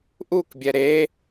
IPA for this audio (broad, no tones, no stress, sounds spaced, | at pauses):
ʔ u k bʲ ɛ ɾ e